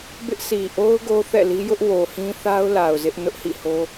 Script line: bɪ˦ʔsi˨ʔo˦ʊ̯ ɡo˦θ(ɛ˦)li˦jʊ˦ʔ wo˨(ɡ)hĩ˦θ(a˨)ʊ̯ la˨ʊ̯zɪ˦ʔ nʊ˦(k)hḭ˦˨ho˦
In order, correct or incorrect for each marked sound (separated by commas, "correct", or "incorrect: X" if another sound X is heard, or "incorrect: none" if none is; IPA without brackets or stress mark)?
incorrect: ɛ̰˦˨, incorrect: none, incorrect: a˦, incorrect: ʔ